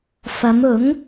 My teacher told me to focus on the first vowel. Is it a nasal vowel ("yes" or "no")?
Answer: no